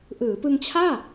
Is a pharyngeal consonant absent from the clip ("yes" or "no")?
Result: yes